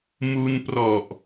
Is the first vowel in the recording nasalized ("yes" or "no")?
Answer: no